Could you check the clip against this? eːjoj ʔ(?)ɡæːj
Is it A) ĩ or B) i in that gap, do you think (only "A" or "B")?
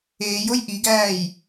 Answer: B